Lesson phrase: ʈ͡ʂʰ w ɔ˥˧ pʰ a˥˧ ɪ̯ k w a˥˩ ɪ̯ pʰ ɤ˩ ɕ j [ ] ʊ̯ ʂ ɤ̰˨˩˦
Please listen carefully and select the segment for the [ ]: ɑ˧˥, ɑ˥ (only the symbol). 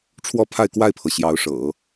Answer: ɑ˧˥